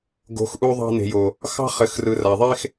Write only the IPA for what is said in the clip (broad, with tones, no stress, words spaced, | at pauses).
ɡo̤˨˦xʔu˧ðˤɑ̤˧ ne̤˨jo˨ | xɑ̤˧χɘ˨x rɯ˨ra˨ðˤe˧x